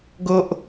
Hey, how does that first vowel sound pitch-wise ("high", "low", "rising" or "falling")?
high